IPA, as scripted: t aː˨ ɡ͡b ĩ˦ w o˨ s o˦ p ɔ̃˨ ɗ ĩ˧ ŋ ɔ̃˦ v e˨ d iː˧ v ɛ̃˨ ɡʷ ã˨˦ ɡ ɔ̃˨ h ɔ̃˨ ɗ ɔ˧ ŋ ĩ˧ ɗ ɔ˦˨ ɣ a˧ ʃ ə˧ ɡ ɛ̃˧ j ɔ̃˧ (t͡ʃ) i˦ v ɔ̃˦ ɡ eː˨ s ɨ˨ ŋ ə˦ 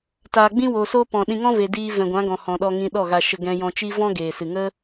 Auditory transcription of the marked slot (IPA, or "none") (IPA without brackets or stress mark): t͡ʃ